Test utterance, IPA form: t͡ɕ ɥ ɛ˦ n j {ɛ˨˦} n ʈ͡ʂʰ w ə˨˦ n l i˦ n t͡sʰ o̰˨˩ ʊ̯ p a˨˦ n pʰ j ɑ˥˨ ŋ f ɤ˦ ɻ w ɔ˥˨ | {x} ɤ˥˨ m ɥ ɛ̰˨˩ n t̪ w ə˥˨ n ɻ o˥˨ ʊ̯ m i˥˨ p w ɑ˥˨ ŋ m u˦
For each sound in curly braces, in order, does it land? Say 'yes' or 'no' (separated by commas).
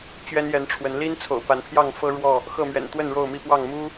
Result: yes, yes